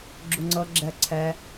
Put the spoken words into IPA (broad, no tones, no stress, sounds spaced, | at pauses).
ɡ͡ǁ u ŋ͡ǀ ɤ ɡ͡ǁ ɛ ǀʰ ɛ